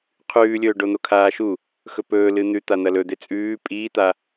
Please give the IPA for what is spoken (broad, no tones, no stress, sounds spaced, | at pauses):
qʰ ʉː lʲ ɵː ɖ o n̪ o kʰ aː ʃ u | x ɵ p ɵː l ɨ n̪ ʉ t̪ a n̪ ɐ l ɵ d̪ e t͡sʼ ʉː pʼ iː t̪ a